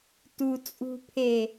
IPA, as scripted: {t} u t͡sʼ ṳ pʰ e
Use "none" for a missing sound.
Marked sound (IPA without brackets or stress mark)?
t